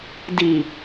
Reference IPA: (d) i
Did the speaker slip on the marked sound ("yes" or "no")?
no